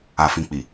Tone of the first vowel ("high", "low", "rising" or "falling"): low